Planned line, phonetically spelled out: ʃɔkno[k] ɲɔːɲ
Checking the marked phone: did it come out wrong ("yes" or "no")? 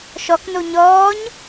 yes